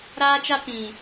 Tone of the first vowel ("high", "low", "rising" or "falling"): high